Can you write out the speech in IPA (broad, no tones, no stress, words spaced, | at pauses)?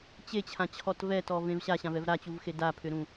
t͡ɕet͡ɕʰãt͡ɕʰɔt vɛtɔvẽv ɕaɕãvɛv ɾat͡ɕuvxe dapʰʏɾũ